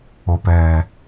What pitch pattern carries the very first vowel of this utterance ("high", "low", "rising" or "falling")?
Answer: low